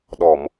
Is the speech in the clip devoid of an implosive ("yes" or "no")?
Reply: no